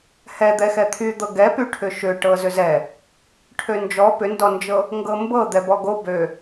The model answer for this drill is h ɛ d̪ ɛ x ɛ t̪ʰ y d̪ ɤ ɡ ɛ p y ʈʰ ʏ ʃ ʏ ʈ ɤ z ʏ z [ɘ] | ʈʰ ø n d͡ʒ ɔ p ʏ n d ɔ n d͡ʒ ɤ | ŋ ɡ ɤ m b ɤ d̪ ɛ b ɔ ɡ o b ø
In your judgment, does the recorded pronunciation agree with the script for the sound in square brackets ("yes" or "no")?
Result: no